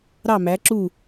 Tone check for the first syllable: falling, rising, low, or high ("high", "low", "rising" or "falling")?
falling